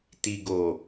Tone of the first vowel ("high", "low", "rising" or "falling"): low